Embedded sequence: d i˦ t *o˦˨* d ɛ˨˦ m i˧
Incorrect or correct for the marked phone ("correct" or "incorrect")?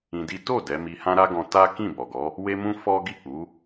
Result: correct